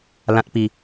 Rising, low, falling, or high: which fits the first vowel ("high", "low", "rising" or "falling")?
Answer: high